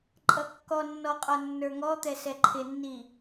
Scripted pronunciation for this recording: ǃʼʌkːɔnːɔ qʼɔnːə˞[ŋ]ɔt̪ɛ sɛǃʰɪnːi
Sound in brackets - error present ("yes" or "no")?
no